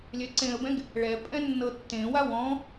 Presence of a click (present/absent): present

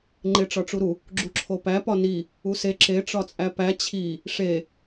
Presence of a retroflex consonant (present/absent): present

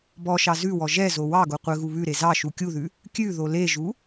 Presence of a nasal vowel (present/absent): absent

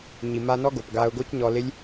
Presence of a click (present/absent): absent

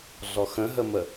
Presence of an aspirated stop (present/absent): absent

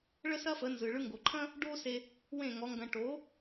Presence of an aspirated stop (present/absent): present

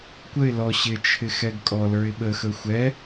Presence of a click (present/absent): absent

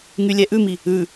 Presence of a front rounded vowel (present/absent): present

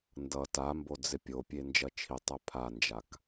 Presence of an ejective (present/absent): absent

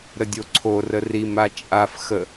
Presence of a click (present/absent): present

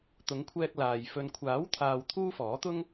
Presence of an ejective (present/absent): absent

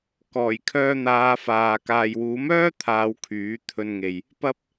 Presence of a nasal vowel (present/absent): absent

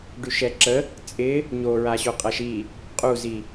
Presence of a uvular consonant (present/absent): present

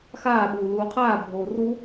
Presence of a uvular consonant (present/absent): present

